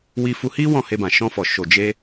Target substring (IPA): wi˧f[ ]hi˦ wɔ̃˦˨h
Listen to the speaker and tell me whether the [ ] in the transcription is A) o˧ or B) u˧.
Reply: B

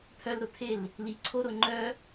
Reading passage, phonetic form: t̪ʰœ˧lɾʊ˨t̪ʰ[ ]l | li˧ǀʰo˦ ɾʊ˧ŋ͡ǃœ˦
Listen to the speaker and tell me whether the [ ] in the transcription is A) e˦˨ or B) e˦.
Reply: A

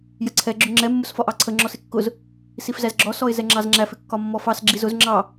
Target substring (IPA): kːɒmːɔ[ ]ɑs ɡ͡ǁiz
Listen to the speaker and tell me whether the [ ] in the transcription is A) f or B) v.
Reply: A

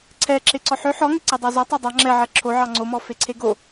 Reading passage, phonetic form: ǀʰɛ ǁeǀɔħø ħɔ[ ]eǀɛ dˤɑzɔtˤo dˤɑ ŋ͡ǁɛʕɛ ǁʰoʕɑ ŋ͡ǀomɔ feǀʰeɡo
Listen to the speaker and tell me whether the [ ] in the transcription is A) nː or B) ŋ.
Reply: B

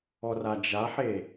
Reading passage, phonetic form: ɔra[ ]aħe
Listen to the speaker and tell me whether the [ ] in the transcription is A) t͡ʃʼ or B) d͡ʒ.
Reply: B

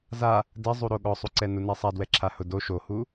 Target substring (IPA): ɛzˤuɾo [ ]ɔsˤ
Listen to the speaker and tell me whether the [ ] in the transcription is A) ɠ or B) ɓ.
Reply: A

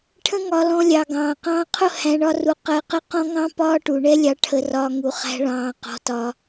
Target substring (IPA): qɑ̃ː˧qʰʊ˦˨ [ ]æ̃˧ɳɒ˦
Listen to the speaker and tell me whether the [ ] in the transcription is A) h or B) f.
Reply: A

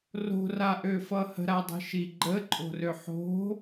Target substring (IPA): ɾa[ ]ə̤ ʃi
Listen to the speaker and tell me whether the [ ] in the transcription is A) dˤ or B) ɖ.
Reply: A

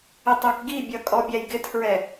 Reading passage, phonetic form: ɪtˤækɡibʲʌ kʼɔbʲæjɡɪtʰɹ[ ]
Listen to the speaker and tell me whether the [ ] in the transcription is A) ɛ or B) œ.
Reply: A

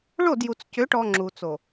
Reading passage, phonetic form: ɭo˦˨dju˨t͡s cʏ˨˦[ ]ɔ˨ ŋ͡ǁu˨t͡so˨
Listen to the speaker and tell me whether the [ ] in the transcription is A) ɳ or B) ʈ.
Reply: B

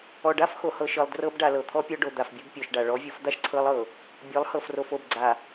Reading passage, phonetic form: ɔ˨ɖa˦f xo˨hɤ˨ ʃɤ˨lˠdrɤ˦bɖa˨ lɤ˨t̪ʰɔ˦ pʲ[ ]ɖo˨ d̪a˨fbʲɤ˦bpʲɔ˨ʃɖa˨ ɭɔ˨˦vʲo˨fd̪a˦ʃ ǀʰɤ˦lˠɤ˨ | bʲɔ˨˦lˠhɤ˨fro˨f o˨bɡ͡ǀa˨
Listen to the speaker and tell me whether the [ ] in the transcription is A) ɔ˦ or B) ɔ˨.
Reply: A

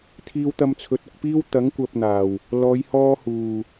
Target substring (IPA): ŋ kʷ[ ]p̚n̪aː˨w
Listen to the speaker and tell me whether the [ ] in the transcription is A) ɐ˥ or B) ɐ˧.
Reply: B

